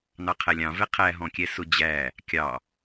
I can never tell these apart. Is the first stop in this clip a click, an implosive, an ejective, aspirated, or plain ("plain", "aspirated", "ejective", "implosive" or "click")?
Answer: aspirated